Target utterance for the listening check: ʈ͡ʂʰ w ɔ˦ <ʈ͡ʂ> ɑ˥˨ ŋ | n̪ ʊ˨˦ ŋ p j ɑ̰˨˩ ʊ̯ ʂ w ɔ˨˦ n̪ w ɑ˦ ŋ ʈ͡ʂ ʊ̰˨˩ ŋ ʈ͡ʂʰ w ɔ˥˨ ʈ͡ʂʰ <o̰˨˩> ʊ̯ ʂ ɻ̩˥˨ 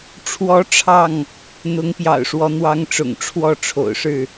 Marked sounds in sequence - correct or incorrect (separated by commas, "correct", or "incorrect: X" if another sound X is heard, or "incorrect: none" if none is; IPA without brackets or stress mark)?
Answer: incorrect: ʈ͡ʂʰ, correct